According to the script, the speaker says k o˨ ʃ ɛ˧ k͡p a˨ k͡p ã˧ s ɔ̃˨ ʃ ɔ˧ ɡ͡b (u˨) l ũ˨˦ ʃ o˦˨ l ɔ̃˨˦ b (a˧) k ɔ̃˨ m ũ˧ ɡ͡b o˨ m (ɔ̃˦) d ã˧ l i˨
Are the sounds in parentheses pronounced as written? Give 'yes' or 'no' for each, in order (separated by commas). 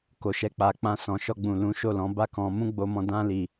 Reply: no, no, no